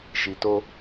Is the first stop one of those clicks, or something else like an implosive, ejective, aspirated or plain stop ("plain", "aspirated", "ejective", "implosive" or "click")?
plain